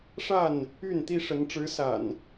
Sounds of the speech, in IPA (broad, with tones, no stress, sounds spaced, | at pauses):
ʂ a˥˨ n | y˥˨ n t̪ i˦ ʂ ə˨˦ n ʈ͡ʂ ɻ̩˨˦ s a̰˨˩ n